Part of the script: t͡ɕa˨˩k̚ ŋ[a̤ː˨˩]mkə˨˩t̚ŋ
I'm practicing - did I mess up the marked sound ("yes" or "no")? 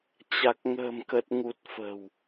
yes